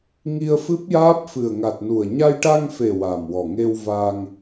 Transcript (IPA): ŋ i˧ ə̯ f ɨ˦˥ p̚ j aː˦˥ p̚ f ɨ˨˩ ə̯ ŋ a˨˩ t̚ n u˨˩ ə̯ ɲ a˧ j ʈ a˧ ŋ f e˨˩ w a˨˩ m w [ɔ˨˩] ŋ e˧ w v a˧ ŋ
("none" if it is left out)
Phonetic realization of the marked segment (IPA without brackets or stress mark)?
ɔ˨˩